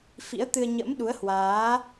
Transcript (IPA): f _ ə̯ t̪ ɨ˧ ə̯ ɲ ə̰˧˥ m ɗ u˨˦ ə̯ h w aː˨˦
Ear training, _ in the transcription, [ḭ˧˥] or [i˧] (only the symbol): ḭ˧˥